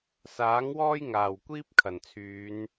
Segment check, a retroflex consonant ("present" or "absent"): absent